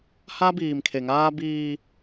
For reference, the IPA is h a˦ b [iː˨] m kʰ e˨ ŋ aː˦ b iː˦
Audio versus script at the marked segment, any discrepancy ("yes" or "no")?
no